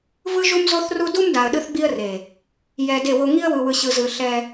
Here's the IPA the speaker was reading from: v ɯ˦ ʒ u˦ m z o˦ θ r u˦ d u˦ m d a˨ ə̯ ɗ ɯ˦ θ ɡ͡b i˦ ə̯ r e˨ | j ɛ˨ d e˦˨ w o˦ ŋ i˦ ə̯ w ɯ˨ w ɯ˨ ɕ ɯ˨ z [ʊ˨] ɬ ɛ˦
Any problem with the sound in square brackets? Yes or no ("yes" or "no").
yes